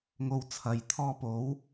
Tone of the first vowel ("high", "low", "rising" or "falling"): low